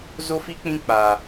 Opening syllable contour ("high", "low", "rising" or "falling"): high